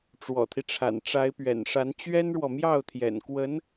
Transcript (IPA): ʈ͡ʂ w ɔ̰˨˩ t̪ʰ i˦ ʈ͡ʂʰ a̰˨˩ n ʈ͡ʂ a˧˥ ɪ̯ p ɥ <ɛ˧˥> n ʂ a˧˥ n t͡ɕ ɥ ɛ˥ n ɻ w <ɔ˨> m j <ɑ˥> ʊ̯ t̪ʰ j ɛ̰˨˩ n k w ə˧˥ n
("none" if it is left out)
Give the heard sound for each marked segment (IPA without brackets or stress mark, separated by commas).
ɛ̰˨˩, ɔ˨, ɑ˥˩